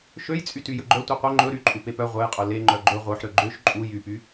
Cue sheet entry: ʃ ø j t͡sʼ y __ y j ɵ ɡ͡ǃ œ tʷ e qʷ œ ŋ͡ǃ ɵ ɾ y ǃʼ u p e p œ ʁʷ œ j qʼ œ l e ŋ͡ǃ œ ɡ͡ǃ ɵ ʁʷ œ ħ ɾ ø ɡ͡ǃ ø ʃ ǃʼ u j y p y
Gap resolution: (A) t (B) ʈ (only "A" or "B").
A